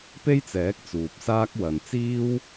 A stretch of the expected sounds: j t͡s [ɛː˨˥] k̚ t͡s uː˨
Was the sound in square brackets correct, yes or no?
yes